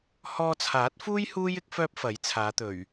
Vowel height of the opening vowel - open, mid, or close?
mid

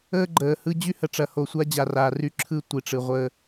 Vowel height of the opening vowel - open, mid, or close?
mid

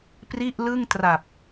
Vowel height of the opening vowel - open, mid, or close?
close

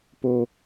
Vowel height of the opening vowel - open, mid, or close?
mid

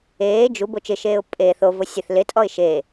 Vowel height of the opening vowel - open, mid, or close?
mid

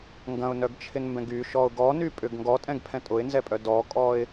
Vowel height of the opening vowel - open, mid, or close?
open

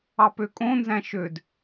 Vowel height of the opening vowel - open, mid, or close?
open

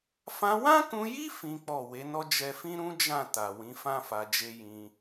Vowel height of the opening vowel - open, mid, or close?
open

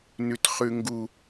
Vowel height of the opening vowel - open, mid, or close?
close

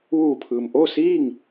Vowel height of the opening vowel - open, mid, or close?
close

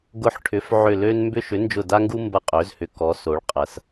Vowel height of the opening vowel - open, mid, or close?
close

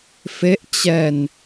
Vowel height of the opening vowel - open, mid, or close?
mid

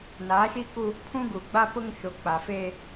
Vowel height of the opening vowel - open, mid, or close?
open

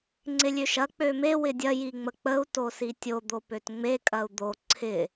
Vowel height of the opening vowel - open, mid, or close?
close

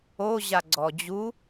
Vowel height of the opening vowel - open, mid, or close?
mid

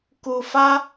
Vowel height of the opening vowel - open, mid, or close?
close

